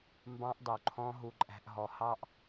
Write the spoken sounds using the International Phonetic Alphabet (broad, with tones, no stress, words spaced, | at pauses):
mbɑ̃˧ʔdˤu˨ǃʰɔ̃˧ ɦu˧ǃʼæ̤˧ʔɦɔ˧ hɑ˦ʔ